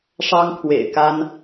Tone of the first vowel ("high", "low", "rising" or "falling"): high